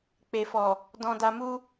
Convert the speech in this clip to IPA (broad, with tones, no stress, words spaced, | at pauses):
k͡pe˨fɔ˨ | dɔ̃˧da˧ mu˦